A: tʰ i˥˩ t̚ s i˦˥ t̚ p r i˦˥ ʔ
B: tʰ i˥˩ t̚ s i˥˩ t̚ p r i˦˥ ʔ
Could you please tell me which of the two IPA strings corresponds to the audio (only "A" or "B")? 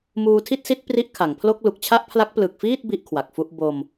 A